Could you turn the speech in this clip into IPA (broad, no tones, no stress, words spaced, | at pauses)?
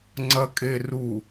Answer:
ŋ͡ǀɐkʼeru